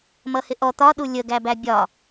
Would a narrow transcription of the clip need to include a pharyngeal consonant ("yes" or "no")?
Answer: no